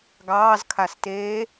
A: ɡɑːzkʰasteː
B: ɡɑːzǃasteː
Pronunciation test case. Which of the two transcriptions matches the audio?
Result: A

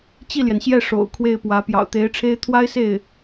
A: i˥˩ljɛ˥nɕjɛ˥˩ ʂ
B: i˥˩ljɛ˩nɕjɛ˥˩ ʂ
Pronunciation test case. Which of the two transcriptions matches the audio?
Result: B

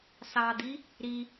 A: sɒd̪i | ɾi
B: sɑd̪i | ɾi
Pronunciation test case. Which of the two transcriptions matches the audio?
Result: B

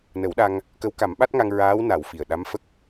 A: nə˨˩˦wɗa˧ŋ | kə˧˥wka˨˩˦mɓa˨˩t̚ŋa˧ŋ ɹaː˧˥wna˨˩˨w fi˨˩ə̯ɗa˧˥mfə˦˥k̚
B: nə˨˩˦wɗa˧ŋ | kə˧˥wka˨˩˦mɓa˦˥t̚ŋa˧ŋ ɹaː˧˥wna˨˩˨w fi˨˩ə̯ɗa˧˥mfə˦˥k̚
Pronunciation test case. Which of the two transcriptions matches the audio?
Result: B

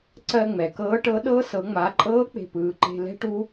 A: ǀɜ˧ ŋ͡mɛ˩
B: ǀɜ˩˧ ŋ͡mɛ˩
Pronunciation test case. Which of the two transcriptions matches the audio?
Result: A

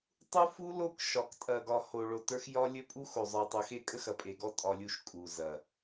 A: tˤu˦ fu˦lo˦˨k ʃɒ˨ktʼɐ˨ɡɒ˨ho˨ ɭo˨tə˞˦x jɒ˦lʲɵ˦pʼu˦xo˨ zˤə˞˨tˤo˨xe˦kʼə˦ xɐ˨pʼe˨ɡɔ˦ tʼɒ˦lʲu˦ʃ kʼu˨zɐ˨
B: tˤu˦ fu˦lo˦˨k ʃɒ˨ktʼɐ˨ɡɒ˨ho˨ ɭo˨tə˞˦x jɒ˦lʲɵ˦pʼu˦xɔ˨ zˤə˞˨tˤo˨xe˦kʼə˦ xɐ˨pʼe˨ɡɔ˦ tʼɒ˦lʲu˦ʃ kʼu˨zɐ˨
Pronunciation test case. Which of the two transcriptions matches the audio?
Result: A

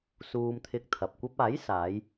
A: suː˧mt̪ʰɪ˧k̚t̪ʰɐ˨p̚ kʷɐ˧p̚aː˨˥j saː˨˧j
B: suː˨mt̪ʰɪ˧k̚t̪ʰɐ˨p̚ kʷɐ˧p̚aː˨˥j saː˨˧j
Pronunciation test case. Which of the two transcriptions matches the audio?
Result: A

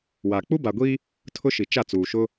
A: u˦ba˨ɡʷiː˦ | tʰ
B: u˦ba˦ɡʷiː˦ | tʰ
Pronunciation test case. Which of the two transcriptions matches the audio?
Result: A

